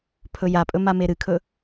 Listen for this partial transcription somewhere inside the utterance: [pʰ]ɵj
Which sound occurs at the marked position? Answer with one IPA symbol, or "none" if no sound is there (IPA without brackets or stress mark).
pʰ